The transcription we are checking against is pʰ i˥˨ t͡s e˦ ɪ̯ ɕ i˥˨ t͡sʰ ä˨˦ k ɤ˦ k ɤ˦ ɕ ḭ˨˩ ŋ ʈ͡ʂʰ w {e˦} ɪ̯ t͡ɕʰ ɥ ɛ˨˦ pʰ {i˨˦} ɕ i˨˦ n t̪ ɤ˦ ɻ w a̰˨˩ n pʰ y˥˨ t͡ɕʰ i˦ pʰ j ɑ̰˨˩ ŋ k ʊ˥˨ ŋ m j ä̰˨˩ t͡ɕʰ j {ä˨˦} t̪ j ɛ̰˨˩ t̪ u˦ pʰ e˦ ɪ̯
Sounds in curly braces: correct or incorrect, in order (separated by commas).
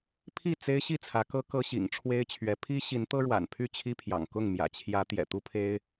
correct, incorrect, correct